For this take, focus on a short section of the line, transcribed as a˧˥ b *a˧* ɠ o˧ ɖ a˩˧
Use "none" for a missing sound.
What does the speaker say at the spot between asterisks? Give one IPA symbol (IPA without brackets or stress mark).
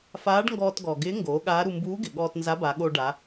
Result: a˩˧